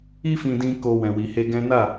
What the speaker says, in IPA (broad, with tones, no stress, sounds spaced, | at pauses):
i˦ f ĩ˧ d ĩ˧ k o˧ w ɛ̃˨ w i˨ h e˧ ɡ ɛ̃˦ n a˦˨